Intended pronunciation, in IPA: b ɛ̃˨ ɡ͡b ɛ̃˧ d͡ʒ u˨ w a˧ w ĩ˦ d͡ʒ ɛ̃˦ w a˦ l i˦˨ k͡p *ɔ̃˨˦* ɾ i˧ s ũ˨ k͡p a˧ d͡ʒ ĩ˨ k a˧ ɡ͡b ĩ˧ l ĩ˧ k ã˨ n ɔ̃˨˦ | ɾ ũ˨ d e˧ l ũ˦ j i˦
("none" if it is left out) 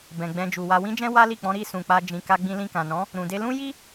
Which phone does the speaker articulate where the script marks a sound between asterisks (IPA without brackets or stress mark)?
ɔ̃˨˦